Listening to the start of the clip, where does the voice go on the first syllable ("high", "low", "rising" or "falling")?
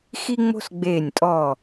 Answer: high